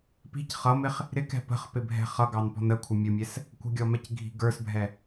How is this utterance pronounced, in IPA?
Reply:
p i̤ c χ ʌ m ɪ χ | ɾ ɪ k ɛ̤ p ə̤ χ p ɪ bʱ ɛ̤ χ ʌ ɡ ɑ n p ɔ̤ n ə kʷʰ ɪ mʲ ʊ mʲ ɛ s | kʷ ə̤ ɡʲ ɔ m ɛ c ɡʱ i̤ ɡ ə˞ s bʱ ɛ

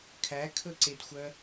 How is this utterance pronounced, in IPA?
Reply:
kʰ æ kʰ ɵ ǀ e d xʷ œ

